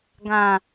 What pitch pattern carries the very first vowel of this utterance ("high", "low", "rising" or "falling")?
low